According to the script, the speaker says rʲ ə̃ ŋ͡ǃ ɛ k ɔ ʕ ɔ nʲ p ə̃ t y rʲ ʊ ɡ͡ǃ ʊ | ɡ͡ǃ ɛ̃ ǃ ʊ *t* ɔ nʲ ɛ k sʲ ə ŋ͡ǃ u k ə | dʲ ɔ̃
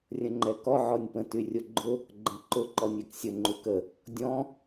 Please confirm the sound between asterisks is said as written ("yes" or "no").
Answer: no